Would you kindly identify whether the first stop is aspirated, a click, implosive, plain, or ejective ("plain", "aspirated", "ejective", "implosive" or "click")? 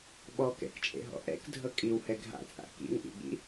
implosive